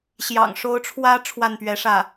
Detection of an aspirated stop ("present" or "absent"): present